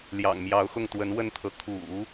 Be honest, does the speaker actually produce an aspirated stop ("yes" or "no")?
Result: yes